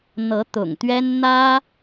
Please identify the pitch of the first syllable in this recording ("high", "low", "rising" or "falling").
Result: rising